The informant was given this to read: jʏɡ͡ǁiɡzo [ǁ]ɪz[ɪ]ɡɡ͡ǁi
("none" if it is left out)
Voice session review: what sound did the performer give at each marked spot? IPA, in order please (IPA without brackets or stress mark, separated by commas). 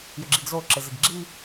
ǁ, ɪ